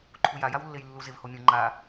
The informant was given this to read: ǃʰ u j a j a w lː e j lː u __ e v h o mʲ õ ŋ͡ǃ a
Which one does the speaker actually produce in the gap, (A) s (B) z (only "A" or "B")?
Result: B